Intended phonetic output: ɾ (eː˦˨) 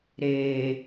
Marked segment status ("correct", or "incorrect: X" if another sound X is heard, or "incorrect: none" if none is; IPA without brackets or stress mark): incorrect: eː˨